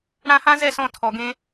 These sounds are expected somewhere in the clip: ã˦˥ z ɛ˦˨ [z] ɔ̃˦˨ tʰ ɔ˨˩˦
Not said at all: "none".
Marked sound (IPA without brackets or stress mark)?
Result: s